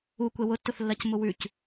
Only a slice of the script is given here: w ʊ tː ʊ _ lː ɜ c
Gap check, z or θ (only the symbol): θ